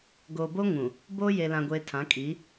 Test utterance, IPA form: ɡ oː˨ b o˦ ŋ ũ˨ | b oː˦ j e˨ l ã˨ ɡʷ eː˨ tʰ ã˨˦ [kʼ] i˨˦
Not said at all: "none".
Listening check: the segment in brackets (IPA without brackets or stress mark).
kʼ